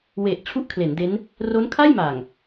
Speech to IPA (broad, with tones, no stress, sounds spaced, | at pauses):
w e˨˩ ʔ t͡ɕʰ u˥˩ ʔ kʰ l e˩˦ n d e˦˥ n | r o˦˥ n kʰ a˥˩ j m a˨˩ ŋ